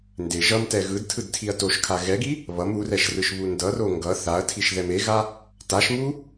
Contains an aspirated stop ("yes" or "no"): yes